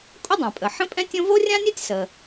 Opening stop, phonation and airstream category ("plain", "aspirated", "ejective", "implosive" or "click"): ejective